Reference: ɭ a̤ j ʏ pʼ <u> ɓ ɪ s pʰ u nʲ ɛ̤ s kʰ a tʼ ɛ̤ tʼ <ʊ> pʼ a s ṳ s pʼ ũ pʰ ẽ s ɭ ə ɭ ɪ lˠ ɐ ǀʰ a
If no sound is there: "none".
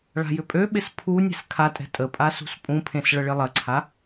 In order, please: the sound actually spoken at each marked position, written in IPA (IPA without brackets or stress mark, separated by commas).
ø, ə